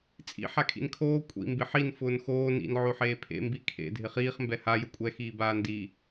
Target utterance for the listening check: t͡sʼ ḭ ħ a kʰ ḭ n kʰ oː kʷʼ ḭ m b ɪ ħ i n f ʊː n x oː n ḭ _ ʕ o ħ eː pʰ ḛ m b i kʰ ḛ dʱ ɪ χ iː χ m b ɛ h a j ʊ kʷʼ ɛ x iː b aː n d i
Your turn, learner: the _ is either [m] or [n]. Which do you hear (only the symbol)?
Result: n